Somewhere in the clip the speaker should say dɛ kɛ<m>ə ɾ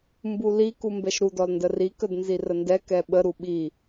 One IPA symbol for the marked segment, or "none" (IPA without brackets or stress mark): ɓ